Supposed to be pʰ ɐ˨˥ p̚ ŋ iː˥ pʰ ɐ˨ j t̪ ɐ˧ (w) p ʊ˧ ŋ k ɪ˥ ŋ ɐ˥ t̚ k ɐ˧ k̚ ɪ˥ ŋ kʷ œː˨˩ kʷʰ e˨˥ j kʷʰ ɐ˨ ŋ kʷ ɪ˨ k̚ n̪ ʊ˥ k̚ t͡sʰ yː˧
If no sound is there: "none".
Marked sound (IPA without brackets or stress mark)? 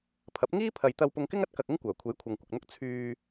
w